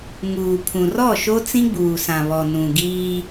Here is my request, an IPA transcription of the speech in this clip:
ŋ uː˨ pʰ ũ˨ r ɔ˦˨ ʃ o˦ t͡s ĩ˦ ɡ͡b uː˨ s ã˨ β ɔ˨ n ũ˨ ɡ iː˦

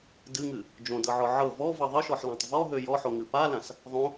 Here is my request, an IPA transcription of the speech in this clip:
d ɨ ŋ ɨ | d͡ʒ õ d ɤ ʕ ɔ ʕ ɤ v ɔ v ɤ ðˤ ɨ ʃ ɔ ħ l ã tˤ v ɔ ɦ ø j ɔ ħ o ŋ ɨ p a l ã s | ðˤ õ

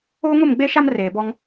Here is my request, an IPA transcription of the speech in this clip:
oː˦ ŋ ʊ˦˨ m ɡ͡b e˦ ʃ a˦ m r eː˨ b ɔ˦ ŋ

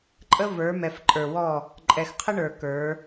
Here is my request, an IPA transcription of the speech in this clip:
ǃʼ ə˦ v ə˞˨˦ m ɛ˨ f ǃʼ ə˞˨ w ɔ˦˨ | ǃʼ ɛ˨ x qʰ ə˦ ɳ ə˞˨ k ə˞˨˦

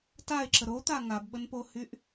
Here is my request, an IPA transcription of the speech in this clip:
t a e̯ ǁ ə ɾ o t̪ a ŋ a b ɓ ə n p o h y ʔ

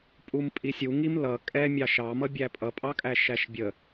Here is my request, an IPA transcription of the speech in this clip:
pʼ u m pʼ i sʲ u ŋ i m l ʌ kʼ ɛ mʲ ɑ ʃ ɑ m ʌ bʲ æ pʼ ʌ pʼ ɑ kʼ æ ʃ æ ʃ bʲ ə

